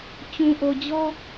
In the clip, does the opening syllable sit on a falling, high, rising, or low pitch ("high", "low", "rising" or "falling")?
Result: low